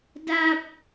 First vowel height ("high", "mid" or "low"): low